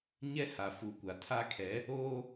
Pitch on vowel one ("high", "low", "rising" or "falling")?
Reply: high